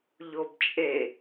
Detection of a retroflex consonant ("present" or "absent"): absent